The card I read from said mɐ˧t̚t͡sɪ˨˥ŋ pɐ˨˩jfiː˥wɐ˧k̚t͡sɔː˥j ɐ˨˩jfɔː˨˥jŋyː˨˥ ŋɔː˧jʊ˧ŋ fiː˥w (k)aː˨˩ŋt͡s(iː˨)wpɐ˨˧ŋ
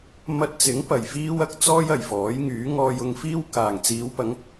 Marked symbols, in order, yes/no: yes, no

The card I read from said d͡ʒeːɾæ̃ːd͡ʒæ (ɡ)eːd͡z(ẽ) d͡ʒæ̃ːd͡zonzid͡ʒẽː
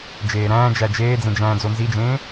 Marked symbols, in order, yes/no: no, yes

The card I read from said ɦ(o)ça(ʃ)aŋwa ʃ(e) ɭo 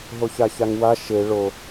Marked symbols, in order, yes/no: yes, no, yes

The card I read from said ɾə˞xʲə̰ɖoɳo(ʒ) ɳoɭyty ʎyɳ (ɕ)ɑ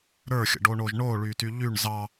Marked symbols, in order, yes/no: yes, no

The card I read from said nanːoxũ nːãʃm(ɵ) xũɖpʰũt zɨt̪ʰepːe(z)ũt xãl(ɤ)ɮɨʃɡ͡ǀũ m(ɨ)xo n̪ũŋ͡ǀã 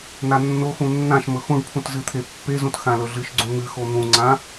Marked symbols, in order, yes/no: yes, yes, no, yes

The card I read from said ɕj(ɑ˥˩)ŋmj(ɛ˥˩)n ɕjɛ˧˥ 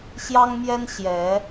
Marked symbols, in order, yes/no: no, no

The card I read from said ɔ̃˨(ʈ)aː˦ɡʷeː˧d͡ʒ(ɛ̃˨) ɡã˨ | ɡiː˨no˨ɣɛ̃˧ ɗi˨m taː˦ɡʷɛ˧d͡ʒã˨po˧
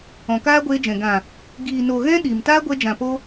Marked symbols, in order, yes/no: no, yes

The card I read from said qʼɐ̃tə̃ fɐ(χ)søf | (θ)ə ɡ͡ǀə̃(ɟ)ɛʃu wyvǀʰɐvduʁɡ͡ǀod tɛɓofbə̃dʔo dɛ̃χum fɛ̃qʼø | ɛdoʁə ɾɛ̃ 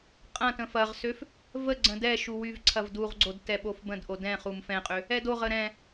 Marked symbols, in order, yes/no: no, no, no

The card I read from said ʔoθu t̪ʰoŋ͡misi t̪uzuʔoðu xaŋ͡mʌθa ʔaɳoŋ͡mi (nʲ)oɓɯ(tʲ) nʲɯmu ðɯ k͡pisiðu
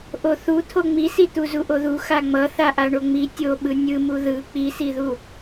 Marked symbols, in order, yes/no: no, no

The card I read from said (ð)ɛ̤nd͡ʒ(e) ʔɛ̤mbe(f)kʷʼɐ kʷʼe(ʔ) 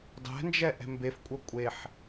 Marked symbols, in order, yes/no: no, no, yes, no

